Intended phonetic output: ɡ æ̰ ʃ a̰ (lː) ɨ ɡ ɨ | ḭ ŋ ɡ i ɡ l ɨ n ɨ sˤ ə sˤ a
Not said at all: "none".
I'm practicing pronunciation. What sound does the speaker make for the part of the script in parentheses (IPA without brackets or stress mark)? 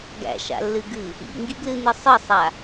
lː